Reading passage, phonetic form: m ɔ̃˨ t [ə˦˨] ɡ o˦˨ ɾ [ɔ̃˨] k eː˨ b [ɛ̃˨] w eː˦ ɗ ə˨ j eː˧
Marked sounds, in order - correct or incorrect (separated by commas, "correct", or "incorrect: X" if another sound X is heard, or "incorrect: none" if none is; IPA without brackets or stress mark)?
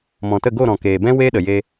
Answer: correct, correct, incorrect: ɛ̃˦